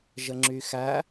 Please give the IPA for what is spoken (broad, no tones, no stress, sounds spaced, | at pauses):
ʒ ə ŋ͡ǁ y x æ